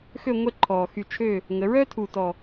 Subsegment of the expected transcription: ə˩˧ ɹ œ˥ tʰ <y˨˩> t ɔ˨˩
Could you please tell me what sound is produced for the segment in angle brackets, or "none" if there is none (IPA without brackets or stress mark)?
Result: u˨˩